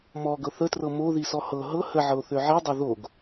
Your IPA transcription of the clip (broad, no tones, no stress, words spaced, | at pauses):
mɔɡɤ θətrɤ moðisɔ hɤ ɦɤ həʕɤo̯θø ʕidˤo ðoɡ